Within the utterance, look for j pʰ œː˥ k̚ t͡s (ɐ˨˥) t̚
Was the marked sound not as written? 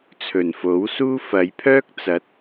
no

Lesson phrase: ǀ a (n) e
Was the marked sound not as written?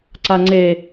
yes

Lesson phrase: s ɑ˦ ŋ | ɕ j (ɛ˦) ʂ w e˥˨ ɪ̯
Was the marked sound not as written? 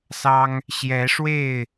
yes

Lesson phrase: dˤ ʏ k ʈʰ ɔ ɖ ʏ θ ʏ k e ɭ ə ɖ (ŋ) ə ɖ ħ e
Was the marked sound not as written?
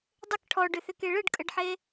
yes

